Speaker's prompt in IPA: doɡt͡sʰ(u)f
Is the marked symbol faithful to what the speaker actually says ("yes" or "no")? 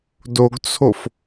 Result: no